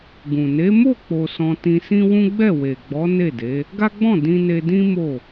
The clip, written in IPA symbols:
ɡũ˨ ne˨˦mo˦˨k͡po˨ sɔ̃˧tĩ˧sĩ˦wũ˦ ɡ͡bɛ˦˨we˨ɡ͡bɔ˨˦ ne˦˨de˨˦ | ɡa˦ɡ͡bɔ̃˦˨ dĩ˧ne˧dĩ˦ mo˦˨

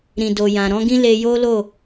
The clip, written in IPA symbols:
ɾĩ˨do˨jã˨ ɾɔ̃˨˦ɡĩ˦ le˧jo˦lo˦˨

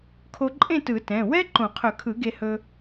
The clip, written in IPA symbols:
kʰo˧ǃʼẽ˥˨tɯ˨˩˦ tɛ̃˩˧˩ wɛ˥ ǃõ˨˩˦qʰɵ˨˩˦kʰɯ˨˩˦ ɡe˧hɵ˧

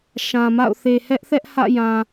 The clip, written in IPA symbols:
ʃã˨ma̰˦˨ʊ̯ θe˨hɛ˦ʔθɛ˦ʔ hä̰˦˨jã˨

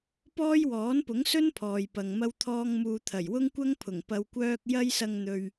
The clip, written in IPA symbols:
pɔː˥jwɔː˨˥npʊ˨˥ŋsɵ˥n pʰɔː˨jpɐ˨ŋ mɐ˥wt̪ʰɔː˥ŋmuː˧ t̪ʰɐ˨˩jwʊ˥ŋkʷɐ˥ŋ pʰʊ˨˩ŋ pɐ˧wkʷœː˥k̚ jɐ˥jsɐ˧ŋn̪ɵ˨ɥ

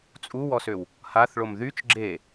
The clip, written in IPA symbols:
t͡sʼuwɔsøw | haθɭom ðyt͡ʃ ɡ͡ǁe

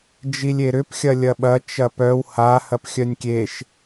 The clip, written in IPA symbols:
d͡ʒilʲeɾʏp xʲɐlʲɐɓɐ t͡ʃɐpœw ha hɐpxʲœnʲkʲeʃ

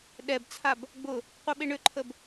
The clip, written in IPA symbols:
ɗɛbt͡sʰab | ɡ͡bʊ | qʷœɓɪɳʏǃʰəb

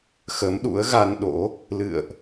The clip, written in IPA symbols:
xə˨˦mɗṵ˧˥ə̯ ɣa˧nɗo̰˧˥ | lɨ̰˧˨ə̯ʔ

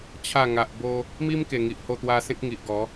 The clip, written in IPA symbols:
t͡ɕʰa˨˩ ŋa˨ʔbo˧ | mi˦mke˨˩ ŋi˨ʔ ho˥˧t̪wa˦ sẽ˦k̚ŋi˨ʔɡɔ˨˦

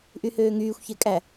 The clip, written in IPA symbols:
ʔyhøːŋyːxʷçe kʼæ

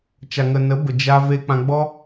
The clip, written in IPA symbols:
t͡ʃa˨ŋə˨nə˨˦bə˨ d͡ʒa˧ ve˧k͡pã˧ɡ͡bɔ˦

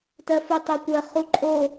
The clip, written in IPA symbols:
tɜfutˤekʷɜ χuǃʼo

